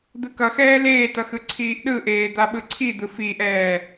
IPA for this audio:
d̪ ɯ k ʌ x ɛː l eː t ʌ x ɯ ǀʰ iː ʔ ɗ ɯ ʔ eː d̪ a ɓ ɯ ǀʰ i d̪ ɯ f i ʔ ɛː

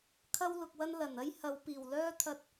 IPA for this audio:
kʰ ɐ˥ w l ʊ˨ k̚ w ɐ˥ n l ɐ˨˩ n ɐ˥ j h ɐ˨˧ w p iː˨˩ w l œː˥ t̪ʰ ɐ˧ t̚

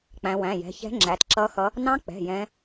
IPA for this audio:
k͡p æ̃˩˧ w æ̃˩˧˩ j ɛ̤˩˧˩ ç ɛ̤˧˥ ŋ͡ǁ æ˩˧ t ǁ ʌ˧˥ x ʌ˧˥ | n ɑ̃˧˥ k͡p ɛ̤˩˧˩ j ɛ̃˧˥

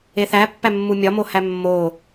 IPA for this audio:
e θ æ pː æ mː u mʲ ɒ m o h æ mː o

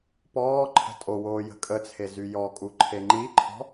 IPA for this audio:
p ɔː ǃʰ ə̤ tʼ o w oː j ə̤ kʼ ə t͡sʰ e z y j ɔ kʼ u ǃʰ e ŋ͡ǃ i ǃʰ ɔ̤

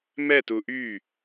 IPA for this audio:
m ɛ t u ʔ y

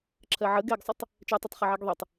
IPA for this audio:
ǁʰ ɜ ʕ ə ɡ ɛ ɡ sˤ u tˤ | t͡ʃ ɛ tˤ ɨ tˤ χ ɜ ʕ ɛ ɡ ðˤ e tˤ

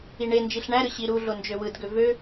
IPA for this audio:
i ɳ e n d͡ʒ i ɬ ɳ æ ɾ ɯ ɕ i ɾ u ɮ o n d͡ʒ ø w ɯ d ɡ ø v ø

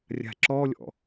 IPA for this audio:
rʲ a̤ ǁ ɔ lʲ ɔ̰

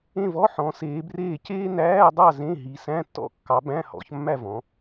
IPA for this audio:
ẽ˥˨ v ɔ˧˥˧ ħ ɔ̃˨˦ s eː˨˦ b r eː˥˨ c eː˥ n æː˧˥˧ dˤ ɑ˥˨ z ẽ˧˥˧ ɦ i˨˦ s æ̃˧˥˧ tː ɔ̰˥˨ kː ɑ˨˦ b æ̃˧˥˧ h ɔ̰˨˦ ç mː æ˥˨ v ɔ̃˨˦

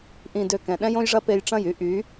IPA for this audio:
ʔ ĩ˨ d ø˨ k ɛ̃˨ ɗ ɛ̃˦ j õ˦ j ʐ ɐ˦ p e˧ j ʈ͡ʂ ɐ̃˦˨ j y˦ ʔ y˨˦

